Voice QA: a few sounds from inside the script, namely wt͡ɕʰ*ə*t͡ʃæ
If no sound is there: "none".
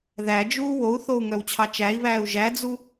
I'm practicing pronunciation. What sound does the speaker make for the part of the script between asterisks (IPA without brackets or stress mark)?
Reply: ɑ